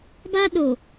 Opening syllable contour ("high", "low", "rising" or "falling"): high